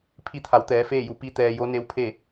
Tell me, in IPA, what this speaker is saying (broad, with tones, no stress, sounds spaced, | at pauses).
pʰ i˧ t̪ʰ a˩˧ w t̪ ɛː˩˧ f eː˥˨ j u˧˩ p i˧ t̪ ɛː˧ j o˧˥ n e˧˥ w pʰ e˥˨